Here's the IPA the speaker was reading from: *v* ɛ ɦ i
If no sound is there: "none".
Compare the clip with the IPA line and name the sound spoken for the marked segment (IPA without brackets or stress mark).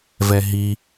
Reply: v